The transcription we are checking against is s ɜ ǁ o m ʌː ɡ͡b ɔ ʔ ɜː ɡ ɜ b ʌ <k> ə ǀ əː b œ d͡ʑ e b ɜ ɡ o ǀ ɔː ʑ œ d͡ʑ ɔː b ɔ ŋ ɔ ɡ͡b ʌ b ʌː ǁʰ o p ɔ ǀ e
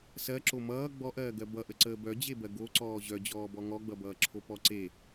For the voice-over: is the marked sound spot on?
no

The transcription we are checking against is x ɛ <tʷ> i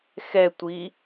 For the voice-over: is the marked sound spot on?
yes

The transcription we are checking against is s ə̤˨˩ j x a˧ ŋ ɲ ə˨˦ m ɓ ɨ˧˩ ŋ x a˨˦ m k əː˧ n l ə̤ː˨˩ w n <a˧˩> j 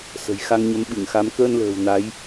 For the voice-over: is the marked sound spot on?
no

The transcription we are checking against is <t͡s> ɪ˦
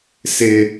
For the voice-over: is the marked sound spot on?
no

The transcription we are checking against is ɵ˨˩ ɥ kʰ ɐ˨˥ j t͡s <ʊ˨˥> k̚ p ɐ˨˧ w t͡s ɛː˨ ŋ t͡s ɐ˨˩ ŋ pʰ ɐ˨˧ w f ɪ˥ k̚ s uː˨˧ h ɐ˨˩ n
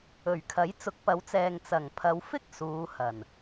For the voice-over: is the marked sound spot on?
yes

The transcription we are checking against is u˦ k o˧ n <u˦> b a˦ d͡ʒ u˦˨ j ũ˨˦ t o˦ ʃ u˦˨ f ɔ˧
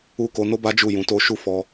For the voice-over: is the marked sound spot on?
no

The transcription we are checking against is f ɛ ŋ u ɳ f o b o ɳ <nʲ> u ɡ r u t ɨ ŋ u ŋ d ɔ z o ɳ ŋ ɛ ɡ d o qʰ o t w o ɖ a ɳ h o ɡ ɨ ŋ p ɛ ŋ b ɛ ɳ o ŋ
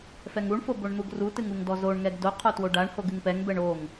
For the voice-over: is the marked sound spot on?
no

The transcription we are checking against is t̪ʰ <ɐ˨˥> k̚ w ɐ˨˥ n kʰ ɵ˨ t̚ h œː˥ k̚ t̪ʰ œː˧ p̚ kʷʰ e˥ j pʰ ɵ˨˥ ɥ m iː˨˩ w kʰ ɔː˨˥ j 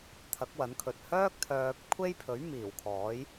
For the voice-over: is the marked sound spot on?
yes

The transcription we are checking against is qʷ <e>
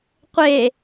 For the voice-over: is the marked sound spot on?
yes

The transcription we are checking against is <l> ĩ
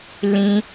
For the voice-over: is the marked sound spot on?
yes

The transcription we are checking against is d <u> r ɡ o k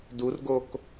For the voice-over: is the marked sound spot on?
yes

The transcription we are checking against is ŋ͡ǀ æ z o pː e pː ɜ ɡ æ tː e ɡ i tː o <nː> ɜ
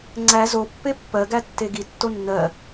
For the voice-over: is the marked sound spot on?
yes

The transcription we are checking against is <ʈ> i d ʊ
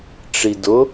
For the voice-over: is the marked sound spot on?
no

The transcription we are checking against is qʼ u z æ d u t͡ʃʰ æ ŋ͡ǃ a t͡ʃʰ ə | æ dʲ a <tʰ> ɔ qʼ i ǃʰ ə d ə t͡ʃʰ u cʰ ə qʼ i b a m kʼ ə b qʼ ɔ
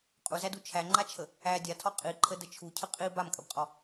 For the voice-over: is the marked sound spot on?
yes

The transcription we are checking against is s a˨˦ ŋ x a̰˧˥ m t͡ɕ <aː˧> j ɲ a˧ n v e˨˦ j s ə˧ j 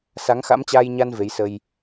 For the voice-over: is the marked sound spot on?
yes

